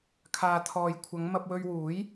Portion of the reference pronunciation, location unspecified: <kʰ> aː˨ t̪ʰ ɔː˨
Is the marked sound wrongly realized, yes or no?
no